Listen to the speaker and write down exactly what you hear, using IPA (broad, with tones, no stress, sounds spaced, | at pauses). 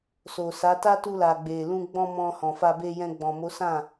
s o˨ s a˨˦ t a˦ t u˧ l a˨ ɡ͡b e˨ l ũ˧ ɡ͡b ɔ̃˧ m ɔ̃˧ h ɔ̃˨ f a˧ b e˧ j ɛ̃˧ ɡ͡b ɔ̃˨ m o˨˦ s ã˦˨